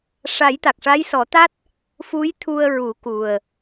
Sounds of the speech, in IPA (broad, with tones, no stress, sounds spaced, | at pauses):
ʂ a˨˩˦ j t̪ a˨˩ k̚ ʂ a˧˥ j s ɔ˨˩˦ t̪ a˦˥ t̚ | f u˧˥ j t̪ʰ u˧ ə̯ ɹ u˨˩˦ k u˨˩ ə̯